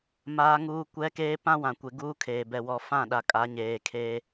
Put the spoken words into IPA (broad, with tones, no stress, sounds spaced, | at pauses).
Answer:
m aː˦ ŋ uː˦ kʷ ɛ˦ k eː˦ p ã˦ w ã˨ kʷ e˨ ɡ uː˦ kʰ eː˨ b ɛ˨ w ɔ˨ f ã˦˨ ɗ a˨ kʼ a˨˦ ɲ eː˨ kʰ e˦